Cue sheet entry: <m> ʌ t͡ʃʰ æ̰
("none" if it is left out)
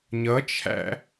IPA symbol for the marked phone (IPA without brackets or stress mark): ɲ